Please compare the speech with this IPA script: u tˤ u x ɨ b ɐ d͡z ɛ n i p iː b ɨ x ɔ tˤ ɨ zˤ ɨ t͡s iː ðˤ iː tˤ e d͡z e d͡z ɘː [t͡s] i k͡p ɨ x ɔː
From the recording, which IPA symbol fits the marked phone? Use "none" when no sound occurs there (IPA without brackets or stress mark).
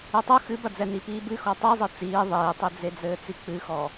t͡s